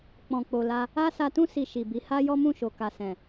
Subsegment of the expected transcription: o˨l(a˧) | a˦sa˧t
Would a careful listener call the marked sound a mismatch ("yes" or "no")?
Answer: no